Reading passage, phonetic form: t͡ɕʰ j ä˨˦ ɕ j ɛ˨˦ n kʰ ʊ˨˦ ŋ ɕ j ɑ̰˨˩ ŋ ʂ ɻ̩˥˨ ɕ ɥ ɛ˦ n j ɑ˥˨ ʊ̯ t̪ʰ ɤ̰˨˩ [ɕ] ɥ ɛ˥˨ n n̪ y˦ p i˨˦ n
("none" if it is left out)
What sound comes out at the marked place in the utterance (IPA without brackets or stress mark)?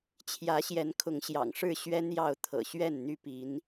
ɕ